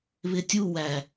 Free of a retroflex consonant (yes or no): yes